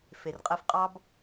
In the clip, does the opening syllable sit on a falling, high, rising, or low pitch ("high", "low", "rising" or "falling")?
low